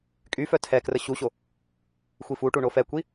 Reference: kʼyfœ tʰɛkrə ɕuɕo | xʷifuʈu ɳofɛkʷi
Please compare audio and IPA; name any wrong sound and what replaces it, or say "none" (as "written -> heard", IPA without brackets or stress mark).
none